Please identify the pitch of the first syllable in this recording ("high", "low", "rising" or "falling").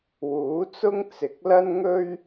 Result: rising